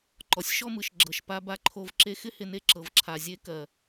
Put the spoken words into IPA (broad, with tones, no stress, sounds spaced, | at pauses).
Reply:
ǃ ɔ˨ sʲ ʃ ɔ˦ m ɯ˨ ʃ ɡ͡ǁ ɤ˨ ʃ p a˧ b a˧ ǃʰ o˧ v ǁ e˧ x ɪ˦ h ɪ˧ n e˧ ǁ ɤ˨ v ǁʰ a˨ zʲ e˧ k ɜ˨